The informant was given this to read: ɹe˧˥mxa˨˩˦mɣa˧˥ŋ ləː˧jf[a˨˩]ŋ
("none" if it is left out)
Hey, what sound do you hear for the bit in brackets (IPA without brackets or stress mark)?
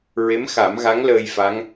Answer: a˧˥